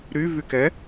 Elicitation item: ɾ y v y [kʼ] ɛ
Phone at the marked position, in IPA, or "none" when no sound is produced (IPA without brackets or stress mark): k